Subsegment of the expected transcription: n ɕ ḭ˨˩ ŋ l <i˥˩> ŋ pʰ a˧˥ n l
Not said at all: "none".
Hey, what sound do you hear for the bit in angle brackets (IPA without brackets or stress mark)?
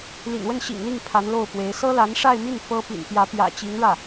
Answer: i˥˩